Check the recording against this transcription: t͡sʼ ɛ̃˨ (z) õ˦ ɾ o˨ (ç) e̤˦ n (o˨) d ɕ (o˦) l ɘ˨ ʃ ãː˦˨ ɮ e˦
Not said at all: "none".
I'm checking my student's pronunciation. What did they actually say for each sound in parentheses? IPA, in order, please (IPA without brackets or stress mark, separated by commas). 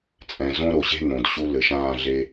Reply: z, ɕ, õ˨, u˦